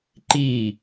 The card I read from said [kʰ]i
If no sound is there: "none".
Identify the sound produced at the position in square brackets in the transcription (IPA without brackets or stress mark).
ǃ